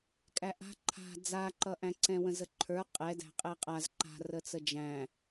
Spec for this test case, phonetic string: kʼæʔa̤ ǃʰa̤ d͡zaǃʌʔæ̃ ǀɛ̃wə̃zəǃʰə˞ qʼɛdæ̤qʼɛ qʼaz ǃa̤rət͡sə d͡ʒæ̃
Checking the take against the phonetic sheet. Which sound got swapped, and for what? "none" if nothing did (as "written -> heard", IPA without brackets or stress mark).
none